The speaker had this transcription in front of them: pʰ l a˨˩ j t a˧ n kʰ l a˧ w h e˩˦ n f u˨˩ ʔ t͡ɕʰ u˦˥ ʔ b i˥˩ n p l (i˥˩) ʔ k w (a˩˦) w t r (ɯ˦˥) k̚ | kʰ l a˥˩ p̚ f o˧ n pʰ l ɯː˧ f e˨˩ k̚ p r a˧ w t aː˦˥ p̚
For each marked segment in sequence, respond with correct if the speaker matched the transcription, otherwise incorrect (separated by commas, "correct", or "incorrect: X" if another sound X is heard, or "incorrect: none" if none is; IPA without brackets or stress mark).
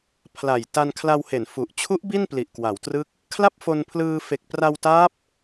incorrect: i˨˩, correct, incorrect: ɯ˥˩